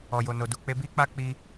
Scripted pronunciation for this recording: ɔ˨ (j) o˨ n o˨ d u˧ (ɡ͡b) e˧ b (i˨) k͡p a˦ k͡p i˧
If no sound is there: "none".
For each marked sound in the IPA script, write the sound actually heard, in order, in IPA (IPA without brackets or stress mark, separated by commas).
j, k͡p, i˦